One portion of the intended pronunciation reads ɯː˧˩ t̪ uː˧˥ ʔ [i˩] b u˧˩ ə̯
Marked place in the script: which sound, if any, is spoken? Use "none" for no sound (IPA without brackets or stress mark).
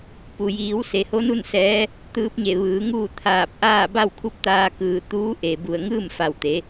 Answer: e˩